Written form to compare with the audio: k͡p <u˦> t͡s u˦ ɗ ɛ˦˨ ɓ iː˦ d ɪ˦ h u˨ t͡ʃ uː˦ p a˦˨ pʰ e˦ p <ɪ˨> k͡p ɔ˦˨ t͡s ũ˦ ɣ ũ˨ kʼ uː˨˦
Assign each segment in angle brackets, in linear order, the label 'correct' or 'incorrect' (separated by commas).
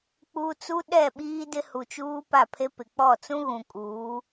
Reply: incorrect, correct